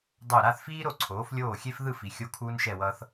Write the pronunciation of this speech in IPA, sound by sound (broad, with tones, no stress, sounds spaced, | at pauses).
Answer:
dˤ o˧˩ ɾ a˥˧ θ f iː˥ ɾ o˧ ǀʰ oː˩˧ f lʲ oː˧˩ xʲ e˧ f ð ɯ˥˧ f i˩˧ xʲ o˧ kʰ uː˧ n ʃ ɛ˧˩ w ʌː˧ θ